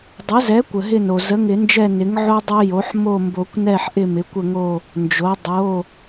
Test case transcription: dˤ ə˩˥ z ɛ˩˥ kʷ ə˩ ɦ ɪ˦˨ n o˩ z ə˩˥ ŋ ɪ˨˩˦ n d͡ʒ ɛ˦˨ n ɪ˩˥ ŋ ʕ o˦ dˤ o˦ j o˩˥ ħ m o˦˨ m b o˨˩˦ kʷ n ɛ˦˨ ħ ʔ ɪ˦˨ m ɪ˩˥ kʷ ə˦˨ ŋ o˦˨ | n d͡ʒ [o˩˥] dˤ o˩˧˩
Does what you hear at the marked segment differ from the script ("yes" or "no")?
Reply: no